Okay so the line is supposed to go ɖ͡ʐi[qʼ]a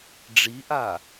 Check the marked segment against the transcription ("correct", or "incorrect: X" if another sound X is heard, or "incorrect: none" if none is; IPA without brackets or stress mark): incorrect: ʔ